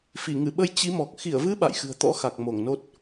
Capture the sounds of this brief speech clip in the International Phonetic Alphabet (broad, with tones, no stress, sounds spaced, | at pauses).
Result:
f i˧˩ ŋ ɨ˧˩ ɓ ə˧ j t͡ɕ i˨˦ m ɔ˨˩ k̚ x i˧˩ ə̯ v ɨ˨˦ ɓ a̰˧˨ j x ɨ̤˨˩ ə̯ t̪ ɔ̰˧˥ x a˨˩ k̚ m o˧˩ ŋ n o˦˥ t̚